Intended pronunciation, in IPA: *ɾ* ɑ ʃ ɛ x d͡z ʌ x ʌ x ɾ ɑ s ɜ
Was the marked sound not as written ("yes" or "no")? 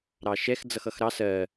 no